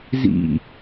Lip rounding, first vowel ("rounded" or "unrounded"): unrounded